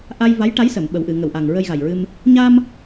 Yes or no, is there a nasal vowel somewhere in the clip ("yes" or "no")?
no